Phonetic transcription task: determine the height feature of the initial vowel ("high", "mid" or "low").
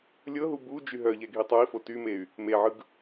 mid